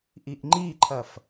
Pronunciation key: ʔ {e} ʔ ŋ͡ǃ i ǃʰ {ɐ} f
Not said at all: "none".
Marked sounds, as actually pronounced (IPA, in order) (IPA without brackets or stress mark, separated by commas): i, ɐ